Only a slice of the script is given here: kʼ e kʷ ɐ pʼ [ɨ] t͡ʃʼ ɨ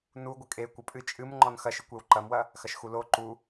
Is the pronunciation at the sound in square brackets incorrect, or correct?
correct